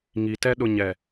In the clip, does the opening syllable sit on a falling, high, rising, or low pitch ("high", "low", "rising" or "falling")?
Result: low